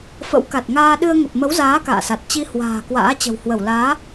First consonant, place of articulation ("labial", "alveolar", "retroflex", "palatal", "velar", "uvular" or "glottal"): labial